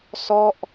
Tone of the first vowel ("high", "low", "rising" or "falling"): falling